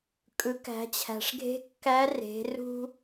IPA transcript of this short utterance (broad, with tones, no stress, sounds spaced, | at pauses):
kʼ ɯ˩˧ k æ̤˩˧ t͡ɕʰ æ̤˩ ʂ ɡʱ e̤˧˥ kː æ˧˥ r e̤˩˧ r ṳ˥